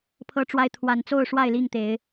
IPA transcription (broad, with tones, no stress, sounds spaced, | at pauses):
pʰ ɤ˦ ʈ͡ʂ w a˦ ɪ̯ t̪ʰ w a˨˩ n t͡s o˥˨ ʊ̯ ʂ w a˥˨ ɪ̯ l i˥˨ ŋ t̪ e˨˦ ɪ̯